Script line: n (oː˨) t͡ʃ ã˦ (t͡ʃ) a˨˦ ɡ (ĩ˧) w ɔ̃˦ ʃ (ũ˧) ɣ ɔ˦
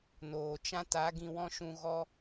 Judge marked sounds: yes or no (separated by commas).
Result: yes, no, yes, yes